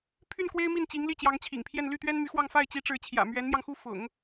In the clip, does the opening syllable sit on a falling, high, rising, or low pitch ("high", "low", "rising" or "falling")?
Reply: falling